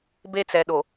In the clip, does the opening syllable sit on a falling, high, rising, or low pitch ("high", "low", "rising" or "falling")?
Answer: high